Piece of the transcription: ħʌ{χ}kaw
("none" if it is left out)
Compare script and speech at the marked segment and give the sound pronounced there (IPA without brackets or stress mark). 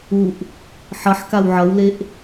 ħ